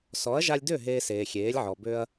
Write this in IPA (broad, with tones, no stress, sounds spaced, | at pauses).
s ɔ˩˥ ɐ̯ ʒ a˧ lʲ d ø˥˩ ɦ eː˧ s eː˩ xʲ eː˩˥ lʲ ʕ ɔ˩ b ø˧ ɐ̯